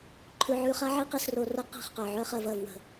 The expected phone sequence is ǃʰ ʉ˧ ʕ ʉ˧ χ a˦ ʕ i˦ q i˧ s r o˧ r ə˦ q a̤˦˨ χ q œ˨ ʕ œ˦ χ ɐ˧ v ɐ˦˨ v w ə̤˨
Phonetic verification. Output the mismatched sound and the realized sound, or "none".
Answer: none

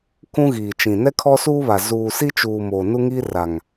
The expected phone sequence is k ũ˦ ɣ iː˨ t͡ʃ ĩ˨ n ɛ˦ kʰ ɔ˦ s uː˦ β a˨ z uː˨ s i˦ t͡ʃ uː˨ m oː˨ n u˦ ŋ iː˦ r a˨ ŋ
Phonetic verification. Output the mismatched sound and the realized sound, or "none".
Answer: none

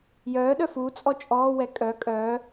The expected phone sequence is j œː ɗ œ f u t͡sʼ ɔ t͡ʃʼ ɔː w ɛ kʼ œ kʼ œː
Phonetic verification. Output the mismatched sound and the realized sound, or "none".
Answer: none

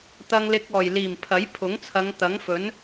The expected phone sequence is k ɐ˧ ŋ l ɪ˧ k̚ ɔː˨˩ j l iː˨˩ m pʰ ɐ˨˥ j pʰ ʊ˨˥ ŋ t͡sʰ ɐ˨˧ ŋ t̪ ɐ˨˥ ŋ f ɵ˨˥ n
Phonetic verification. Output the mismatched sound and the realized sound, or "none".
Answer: k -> t̪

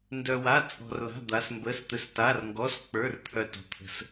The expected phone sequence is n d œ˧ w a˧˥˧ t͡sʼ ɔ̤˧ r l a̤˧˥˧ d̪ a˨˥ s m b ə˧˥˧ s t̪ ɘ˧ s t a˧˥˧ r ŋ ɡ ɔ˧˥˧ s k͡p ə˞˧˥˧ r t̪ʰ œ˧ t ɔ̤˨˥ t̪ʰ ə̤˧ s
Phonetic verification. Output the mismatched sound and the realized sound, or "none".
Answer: none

